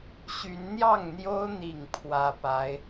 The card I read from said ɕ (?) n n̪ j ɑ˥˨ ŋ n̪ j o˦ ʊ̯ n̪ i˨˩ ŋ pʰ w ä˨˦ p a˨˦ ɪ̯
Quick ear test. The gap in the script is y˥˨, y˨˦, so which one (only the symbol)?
y˨˦